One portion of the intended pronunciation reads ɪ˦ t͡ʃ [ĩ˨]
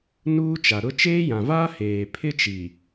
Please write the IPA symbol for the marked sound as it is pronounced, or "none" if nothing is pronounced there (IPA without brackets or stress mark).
i˨